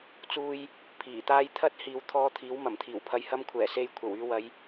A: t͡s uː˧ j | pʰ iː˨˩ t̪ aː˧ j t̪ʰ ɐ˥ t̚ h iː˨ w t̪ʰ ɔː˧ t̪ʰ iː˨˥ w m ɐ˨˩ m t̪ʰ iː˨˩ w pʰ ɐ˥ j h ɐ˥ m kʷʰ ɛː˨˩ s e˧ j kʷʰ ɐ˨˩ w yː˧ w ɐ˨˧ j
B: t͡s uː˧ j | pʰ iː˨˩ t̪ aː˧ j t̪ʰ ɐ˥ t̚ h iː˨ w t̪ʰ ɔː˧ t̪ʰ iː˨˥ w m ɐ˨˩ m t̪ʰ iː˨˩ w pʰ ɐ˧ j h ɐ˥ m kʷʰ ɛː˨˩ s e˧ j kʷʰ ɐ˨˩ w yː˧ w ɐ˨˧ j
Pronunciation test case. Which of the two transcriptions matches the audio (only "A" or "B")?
B